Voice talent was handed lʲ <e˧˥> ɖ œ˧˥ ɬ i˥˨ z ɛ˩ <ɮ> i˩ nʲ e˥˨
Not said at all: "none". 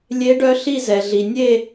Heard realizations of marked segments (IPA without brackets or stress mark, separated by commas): e˧˥, ɮ